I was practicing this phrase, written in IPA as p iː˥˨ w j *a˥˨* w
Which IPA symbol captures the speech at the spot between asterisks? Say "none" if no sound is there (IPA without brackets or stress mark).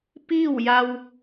a˧